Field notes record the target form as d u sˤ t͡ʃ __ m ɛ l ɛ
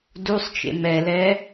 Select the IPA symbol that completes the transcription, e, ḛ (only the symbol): ḛ